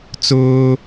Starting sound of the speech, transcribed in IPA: t͡s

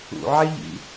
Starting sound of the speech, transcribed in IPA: ṵ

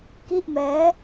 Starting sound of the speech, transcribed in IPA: k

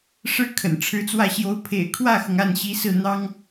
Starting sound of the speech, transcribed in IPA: ʂ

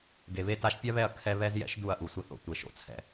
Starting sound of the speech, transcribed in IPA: ɡ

